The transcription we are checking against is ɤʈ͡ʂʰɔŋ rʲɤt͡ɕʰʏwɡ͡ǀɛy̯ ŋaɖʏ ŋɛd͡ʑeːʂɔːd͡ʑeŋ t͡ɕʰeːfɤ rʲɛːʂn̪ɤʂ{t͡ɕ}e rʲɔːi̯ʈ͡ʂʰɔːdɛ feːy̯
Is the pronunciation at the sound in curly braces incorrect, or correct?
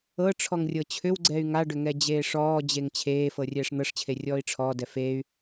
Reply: incorrect